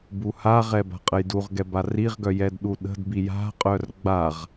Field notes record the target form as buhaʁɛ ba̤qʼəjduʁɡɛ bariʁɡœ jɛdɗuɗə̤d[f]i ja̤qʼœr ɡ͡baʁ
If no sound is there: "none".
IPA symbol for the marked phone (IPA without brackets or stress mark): b